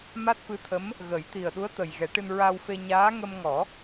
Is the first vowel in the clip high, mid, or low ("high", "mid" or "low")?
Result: low